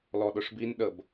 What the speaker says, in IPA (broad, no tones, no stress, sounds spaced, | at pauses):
l ɔ ɗ ʊ ʂ b i n ɗ ə b